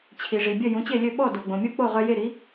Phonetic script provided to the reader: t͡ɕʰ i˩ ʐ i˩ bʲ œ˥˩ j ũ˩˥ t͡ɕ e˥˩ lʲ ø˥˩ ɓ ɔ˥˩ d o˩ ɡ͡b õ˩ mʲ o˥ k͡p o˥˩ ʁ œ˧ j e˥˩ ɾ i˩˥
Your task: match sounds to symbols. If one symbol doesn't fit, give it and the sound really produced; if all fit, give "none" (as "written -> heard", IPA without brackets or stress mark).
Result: none